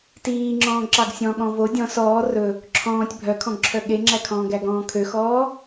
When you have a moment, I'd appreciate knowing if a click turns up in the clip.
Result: yes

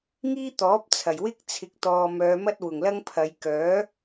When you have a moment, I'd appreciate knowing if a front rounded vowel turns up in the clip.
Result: yes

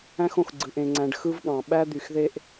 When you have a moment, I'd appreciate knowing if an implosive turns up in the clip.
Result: yes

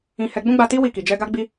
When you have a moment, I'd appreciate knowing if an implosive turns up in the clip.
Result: no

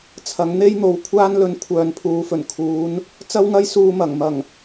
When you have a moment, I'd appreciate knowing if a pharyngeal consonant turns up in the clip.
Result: no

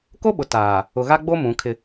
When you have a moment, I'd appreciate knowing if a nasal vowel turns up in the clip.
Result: yes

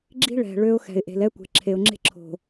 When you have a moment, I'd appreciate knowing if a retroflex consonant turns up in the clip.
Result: yes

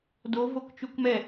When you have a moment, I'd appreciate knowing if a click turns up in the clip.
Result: no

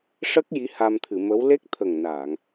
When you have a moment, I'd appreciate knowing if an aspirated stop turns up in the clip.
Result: yes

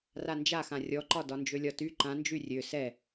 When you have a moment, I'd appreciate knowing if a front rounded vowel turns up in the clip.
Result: yes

